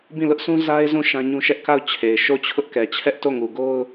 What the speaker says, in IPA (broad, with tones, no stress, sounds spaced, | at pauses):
b ĩ˦˨ l ʊ˦ ʔ s ũ˦ z a˦ ɪ̯ z ũ˦˨ ʃ ã˦ ɲ ũ˦ ʃ ɛ˦ ʔ k a˦˨ ʊ̯ t͡ɕʰ e˨ ɪ̯ ʃ o˦˨ t͡ɕʰ ʊ˦ ʔ k ɛ˨ t͡ɕʰ ɛ˦ ʔ t o˦˨ ŋ u˨ ɡ o˦ ʊ̯